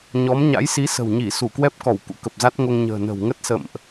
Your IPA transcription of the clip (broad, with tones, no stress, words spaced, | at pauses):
ɲɔ˨˦m ɲa̰˧˥jsi˨˦sə̤˨˩w ɲi˧˩ su˧˩kwɛ˦˥p̚kɔ˧˩w kṵ˧˥kə˨˩p̚za˦˥t̚ ŋo˧ŋɲə̤ː˨˩ nə̤˨˩w ŋə˦˥t̚sə̰˧˨mʔ